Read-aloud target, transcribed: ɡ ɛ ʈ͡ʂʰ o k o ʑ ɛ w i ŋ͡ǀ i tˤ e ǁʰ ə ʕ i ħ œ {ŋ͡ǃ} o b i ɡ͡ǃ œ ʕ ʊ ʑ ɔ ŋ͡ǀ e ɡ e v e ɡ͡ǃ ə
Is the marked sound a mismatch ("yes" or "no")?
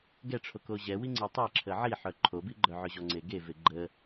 yes